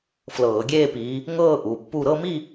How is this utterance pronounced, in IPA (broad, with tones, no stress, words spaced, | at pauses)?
flɤː˧˩˧ɡʲeː˥˧piː˨˦ | ŋɤː˥˧ ʔu˩˧˩pːu˥˧ ɾɤ˥˧mi˥˧